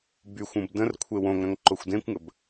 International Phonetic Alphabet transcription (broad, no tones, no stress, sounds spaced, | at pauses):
b y xʷ ũ b d ə̃ r kʷʰ e w õ ŋ ɾ ɐ̃ ŋ ǃ o xʷ d ẽ kʷ ŋ ə b